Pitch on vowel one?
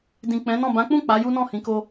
low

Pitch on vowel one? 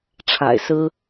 low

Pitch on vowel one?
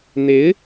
rising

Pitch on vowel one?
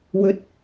rising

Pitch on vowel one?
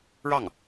falling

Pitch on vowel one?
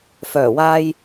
low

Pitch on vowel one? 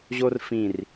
high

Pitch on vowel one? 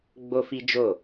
high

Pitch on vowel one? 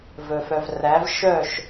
low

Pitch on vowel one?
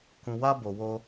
low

